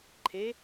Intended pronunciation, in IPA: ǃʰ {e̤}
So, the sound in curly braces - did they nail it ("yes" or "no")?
no